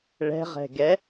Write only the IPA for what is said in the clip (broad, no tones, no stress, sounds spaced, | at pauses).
ɭ ɛ̤ ʁ ɛ̤ ɡ ɛ